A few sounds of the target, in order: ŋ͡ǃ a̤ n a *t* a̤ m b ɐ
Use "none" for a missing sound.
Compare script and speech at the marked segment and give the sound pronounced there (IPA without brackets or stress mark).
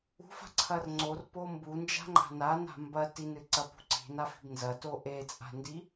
n